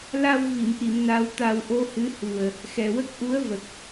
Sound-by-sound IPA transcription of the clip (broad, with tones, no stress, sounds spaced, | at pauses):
l a˧ w v i˨˩˨ m ʔ i˨˩˨ m n a˧˥ w t̪ a˧ w ʔ o˧ h ɨ˧˥ h u˨˩ ə̯ | x ɛ˨˩ w ə˦˥ k̚ ʔ u˧˥ ə̯ v ə˨˩ k̚